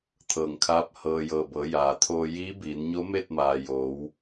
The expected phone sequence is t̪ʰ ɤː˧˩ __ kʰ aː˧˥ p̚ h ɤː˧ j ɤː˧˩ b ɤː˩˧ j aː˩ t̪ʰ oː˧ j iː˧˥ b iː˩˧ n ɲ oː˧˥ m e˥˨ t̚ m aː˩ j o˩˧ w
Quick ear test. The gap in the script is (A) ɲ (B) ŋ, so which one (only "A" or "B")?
B